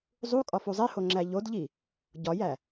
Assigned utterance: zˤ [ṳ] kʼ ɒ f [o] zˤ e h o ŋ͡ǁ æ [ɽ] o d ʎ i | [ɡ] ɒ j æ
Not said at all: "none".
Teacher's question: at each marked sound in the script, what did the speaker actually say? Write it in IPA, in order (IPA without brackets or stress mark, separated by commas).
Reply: u, u, ʎ, ɟ